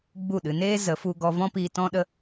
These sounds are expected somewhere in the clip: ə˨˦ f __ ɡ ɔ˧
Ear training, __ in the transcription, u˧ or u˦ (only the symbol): u˧